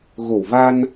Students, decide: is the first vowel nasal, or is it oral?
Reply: oral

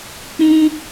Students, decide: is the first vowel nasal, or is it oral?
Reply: nasal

